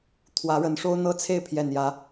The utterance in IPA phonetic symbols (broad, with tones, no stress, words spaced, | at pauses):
t̪ʰwä˨˦ɻə˨˦nʂo˦ʊ̯n̪ɤ˦ t͡sʰe˥˨ɪ̯pʰjɛ˨˩njä˨˦